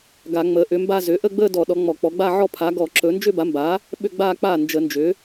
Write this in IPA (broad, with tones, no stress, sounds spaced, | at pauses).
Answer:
ɡ a˧˩˧ ŋ͡m əː˩˥ ʔ ʏ˩˥ m b a˥˧ z ʏ˩˥ ʔ ə˥˧ ɡ͡b əː˥˧ d ɔ˧˩˧ ɗ ɔ˩˥ ŋ͡m ɔ˧˩˧ k͡p ɔ˩˥ ɡ͡b a˥˧ ʕ ɔ˥˧ pʰ a˩˥ ɡ ɔ˧˩˧ ǁ ɵ˩˥ n d͡ʒ ʏ˥˧ b a˩˥ m b aː˩˥ | ɓ ʏ˥˧ ɡ͡b aː˥˧ k͡p aː˥˩ n d͡ʒ ə˧˩˧ n d͡ʒ ʏː˩˥